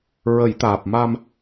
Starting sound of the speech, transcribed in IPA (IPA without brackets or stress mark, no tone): ɹ